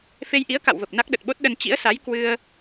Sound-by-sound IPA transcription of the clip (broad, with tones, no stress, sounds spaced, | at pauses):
f e˧ j ʔ i˨˦ ə̯ k a̰˧˨ w v ə˨˩ p̚ n a˦˥ k̚ ɗ ə˨˩ t̚ ɓ o˦˥ t̚ ɗ ə˧ n t͡ɕ ḭ˧˥ ə̯ s a˨˦ j k w ɨ˧ ə̯